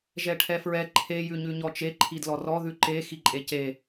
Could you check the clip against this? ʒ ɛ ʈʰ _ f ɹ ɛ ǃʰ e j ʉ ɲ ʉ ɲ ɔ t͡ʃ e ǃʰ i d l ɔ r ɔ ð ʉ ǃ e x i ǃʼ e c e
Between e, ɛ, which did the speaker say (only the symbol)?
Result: ɛ